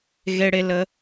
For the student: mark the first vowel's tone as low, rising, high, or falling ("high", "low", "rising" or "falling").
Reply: high